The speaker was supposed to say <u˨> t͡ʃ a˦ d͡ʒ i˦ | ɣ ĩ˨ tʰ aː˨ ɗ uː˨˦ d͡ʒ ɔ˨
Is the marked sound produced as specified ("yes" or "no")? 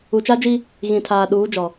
yes